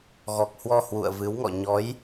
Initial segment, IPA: ɣ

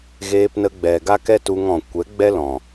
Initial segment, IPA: ɣ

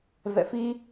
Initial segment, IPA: v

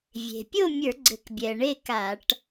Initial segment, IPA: vʲ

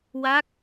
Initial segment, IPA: w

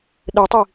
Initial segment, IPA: ɗ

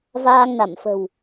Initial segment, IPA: v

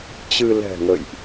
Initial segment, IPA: t͡ɕ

